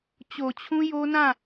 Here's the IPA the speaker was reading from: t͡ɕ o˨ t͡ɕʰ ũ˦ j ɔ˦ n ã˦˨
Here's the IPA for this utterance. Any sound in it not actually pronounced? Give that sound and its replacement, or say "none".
ɔ˦ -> o˦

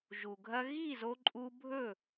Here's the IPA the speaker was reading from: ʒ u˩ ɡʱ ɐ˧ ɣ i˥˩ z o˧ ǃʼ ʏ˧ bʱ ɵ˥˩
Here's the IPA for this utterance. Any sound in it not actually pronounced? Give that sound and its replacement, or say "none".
ʏ˧ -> u˧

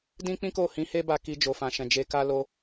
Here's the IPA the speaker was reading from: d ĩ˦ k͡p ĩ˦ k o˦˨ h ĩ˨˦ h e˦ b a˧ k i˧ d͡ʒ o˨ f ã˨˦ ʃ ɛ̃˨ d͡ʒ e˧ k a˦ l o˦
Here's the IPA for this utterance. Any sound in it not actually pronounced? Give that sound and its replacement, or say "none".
ã˨˦ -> ã˨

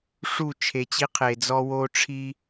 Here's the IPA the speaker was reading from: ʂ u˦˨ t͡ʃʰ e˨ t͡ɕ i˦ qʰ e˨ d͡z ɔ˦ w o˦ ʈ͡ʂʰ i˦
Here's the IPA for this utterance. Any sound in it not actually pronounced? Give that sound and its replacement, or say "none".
none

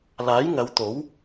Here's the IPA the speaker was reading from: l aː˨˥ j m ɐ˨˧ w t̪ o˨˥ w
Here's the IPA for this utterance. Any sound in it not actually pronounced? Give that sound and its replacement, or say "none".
m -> ŋ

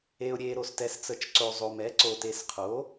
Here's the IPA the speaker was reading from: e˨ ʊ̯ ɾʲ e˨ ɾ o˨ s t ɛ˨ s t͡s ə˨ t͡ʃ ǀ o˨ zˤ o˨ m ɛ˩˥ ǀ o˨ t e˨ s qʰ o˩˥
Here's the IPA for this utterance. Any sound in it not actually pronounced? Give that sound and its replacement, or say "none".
none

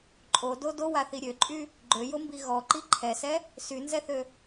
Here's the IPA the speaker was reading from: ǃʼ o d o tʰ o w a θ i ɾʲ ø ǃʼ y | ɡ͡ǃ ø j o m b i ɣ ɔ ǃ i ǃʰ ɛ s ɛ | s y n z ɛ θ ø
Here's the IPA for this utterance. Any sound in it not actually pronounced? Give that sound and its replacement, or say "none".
tʰ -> d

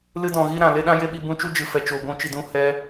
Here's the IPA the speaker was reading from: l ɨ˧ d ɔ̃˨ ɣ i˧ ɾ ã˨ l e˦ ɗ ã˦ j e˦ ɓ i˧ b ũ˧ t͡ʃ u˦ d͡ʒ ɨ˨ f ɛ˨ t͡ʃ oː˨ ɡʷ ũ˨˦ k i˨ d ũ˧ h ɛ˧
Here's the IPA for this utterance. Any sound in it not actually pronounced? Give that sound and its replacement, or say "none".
k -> t͡ʃ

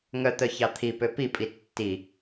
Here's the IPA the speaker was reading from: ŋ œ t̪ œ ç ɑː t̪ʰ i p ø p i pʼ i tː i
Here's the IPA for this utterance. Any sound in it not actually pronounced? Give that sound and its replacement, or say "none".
ɑː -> ɑ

